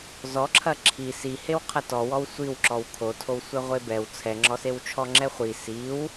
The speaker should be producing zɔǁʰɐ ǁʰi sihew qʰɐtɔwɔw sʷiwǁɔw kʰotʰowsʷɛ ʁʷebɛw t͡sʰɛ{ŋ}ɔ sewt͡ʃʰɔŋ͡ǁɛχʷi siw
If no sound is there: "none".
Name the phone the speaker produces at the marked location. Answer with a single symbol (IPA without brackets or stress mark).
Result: ŋ͡ǁ